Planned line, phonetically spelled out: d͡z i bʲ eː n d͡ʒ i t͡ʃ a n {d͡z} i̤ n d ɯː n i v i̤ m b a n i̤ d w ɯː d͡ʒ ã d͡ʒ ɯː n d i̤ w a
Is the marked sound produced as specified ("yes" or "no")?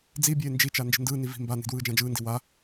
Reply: no